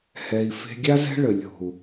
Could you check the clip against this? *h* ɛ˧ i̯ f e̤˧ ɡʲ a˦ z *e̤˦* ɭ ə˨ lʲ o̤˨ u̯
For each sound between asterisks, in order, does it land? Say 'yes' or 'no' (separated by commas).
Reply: yes, no